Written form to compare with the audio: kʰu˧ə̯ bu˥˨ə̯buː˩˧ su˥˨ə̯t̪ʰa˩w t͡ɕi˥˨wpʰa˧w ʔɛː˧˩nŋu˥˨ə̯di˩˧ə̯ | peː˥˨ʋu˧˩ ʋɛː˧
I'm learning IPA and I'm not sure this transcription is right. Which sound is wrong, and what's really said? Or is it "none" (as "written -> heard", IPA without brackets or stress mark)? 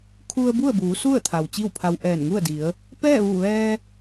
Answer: eː˥˨ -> ɛː˥˨